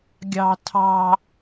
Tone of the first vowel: high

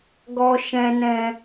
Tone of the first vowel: low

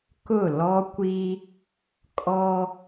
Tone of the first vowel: falling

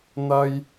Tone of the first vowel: high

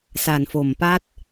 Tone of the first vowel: low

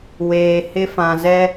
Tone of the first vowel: low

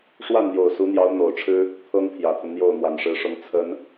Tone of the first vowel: falling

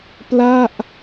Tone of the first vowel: falling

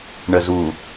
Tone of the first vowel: low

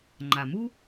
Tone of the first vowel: low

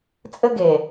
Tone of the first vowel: high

